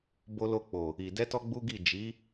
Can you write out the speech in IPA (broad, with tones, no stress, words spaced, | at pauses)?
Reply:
bo˧lo˧k͡po˨ | i˨ dɛ˧tɔ˧ ɡ͡bu˦ɡi˦˨ d͡ʒi˨˦